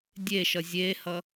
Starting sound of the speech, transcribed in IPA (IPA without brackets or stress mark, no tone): dʲ